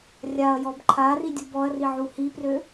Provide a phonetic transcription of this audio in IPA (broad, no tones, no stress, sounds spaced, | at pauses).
rʲ a ɐ̯ j ɔ b ǃʰ a r i dʲ u b ɔ ɐ̯ r i ʕ u h i p r ø